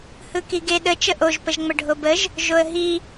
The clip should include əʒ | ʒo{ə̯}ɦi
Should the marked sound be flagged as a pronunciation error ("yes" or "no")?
no